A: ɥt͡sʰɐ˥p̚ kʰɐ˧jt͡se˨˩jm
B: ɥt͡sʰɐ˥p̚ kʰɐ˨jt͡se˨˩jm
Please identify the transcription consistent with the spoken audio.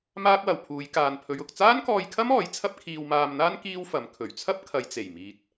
B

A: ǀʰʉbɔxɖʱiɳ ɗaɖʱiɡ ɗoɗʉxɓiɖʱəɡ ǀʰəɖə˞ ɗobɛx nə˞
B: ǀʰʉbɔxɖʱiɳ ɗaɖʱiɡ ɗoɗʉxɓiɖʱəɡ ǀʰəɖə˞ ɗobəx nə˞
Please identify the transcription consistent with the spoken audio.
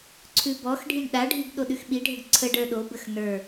B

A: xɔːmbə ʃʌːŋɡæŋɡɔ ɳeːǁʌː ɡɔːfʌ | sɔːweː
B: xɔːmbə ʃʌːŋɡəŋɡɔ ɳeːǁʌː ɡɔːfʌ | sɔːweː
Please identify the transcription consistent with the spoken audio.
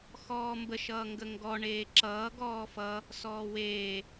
B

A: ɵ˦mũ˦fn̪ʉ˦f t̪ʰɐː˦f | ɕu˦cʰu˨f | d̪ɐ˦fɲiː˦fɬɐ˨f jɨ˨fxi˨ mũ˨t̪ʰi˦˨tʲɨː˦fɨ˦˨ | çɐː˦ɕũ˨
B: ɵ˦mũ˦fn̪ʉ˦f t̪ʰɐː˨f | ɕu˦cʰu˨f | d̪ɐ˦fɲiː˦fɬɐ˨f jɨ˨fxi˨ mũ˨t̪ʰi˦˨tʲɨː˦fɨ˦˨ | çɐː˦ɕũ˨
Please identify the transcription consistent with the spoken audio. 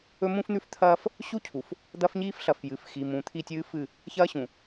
A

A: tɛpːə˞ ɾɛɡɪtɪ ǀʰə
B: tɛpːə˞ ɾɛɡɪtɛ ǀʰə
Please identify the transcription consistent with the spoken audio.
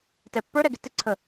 A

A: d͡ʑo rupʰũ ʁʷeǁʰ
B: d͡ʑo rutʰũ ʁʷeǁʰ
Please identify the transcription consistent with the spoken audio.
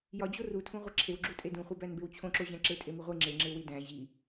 B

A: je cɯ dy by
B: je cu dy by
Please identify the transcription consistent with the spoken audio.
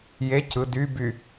A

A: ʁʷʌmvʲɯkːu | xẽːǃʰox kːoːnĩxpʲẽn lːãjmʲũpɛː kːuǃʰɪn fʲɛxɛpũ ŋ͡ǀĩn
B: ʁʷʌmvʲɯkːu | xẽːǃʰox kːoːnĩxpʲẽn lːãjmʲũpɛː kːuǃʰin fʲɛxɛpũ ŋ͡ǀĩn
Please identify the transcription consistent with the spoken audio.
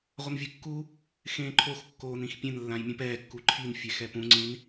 B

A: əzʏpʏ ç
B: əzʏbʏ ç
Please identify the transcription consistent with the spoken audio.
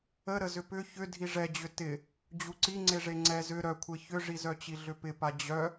A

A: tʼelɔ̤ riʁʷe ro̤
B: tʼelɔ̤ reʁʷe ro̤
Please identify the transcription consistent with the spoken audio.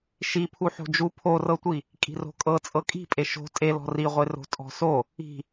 A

